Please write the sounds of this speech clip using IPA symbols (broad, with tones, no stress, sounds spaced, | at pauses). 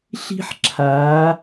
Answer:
ɬ i̤˦ ħ ǁʰ aː˨˦